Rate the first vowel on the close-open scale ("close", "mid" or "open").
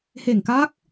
mid